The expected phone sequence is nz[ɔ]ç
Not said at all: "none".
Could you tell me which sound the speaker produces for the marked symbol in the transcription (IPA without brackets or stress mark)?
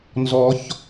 ɔ